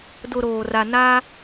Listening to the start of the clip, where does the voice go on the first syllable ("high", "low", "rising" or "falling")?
low